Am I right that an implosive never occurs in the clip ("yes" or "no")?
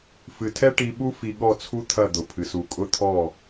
no